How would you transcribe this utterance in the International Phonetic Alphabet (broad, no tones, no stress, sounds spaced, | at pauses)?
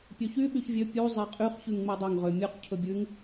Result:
pʲ ø ç y ɓ y ç vʲ ø pʲ u zˤ e qʼ y χ ç ʉ ŋ ŋ͡m e dˤ ɵ ŋ ʁ ø mʲ ʉ q cʰ ɵ bʲ ʉ ŋ